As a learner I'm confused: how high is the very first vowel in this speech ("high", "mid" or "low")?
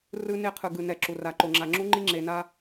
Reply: high